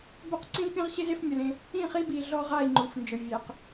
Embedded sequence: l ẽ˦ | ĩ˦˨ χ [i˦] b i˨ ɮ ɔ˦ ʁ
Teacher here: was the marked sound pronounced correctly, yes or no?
yes